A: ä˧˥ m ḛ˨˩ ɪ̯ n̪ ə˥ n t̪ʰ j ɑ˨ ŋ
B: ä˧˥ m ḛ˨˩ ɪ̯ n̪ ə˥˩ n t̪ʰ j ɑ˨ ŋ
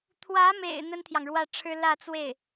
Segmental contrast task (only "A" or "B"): A